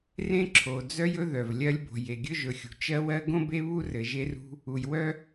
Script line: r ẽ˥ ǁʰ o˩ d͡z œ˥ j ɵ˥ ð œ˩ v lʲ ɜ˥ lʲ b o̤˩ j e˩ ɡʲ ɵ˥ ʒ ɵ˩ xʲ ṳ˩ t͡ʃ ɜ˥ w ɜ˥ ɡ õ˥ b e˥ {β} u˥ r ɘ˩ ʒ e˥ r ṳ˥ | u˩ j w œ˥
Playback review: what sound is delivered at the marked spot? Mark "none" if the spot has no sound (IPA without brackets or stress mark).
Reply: β